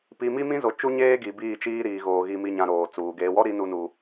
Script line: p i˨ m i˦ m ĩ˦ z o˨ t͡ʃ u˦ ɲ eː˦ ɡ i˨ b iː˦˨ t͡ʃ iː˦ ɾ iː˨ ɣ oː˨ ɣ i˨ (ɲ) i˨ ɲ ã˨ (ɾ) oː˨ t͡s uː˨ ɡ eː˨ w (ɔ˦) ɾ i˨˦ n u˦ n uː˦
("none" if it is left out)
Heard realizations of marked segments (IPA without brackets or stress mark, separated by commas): m, ɾ, ɔ˦